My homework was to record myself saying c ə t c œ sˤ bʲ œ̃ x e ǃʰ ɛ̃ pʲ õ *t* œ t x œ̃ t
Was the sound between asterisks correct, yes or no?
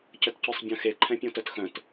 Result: yes